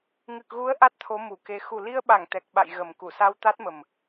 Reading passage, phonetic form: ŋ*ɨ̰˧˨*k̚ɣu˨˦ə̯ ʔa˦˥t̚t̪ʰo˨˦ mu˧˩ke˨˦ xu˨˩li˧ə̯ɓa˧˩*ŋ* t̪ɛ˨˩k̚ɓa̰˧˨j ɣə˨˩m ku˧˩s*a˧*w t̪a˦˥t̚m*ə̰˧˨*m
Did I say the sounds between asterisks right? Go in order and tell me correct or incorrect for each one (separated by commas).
incorrect, correct, correct, incorrect